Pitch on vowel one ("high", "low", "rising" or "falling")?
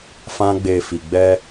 high